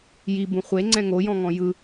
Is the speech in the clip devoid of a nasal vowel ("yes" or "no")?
no